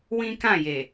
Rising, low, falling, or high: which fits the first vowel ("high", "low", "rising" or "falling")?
high